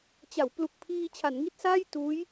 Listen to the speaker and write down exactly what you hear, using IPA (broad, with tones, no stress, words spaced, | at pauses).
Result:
t͡ɕa˩˦w plu˨˩k̚pʰiː˧ t͡ɕʰa˩˦nŋi˥˩t̚saː˥˩j tuː˦˥j